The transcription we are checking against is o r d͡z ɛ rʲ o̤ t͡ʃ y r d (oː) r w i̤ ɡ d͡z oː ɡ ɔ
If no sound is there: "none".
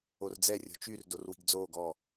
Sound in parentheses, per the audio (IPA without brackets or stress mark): o